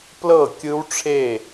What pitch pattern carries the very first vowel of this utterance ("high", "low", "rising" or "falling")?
falling